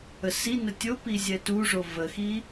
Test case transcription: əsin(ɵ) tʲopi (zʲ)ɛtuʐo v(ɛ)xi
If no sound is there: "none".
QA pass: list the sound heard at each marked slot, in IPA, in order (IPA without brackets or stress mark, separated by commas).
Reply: ə, zʲ, ə